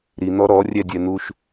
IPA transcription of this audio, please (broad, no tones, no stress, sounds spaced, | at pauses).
ɾ i n̪ ɔ ɾ ɔ rʲ ɛ dʲ ɛ n̪ u ʃ